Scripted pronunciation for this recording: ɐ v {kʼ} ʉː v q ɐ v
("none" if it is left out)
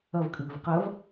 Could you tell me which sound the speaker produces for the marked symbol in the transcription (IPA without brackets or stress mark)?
kʼ